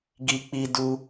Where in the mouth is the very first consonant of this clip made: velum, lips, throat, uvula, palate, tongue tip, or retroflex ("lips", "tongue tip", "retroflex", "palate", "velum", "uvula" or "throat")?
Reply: velum